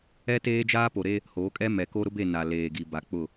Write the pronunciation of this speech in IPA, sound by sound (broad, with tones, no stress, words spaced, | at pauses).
ɛ˦teː˦ d͡ʒaː˦po˨ɾe˦ | ho˨˦kʼɛ˦ mɛ˨ko˦ ɾʊ˦be˦˨ na˨leː˨ɡi˨ ba˨k͡pʊ˦˨